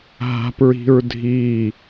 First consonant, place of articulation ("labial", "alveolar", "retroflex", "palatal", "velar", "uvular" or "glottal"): glottal